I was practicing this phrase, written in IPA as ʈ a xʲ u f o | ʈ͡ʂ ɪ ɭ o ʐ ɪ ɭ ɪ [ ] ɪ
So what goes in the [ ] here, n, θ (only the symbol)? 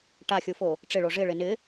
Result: n